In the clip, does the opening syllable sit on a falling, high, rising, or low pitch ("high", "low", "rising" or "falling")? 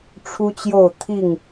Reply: high